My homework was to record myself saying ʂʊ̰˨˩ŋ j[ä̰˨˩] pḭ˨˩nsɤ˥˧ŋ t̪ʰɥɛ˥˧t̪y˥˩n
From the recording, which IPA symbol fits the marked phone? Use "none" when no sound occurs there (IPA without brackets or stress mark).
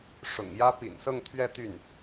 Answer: ä˥